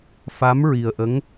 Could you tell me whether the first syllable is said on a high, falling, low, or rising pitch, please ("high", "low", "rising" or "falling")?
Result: rising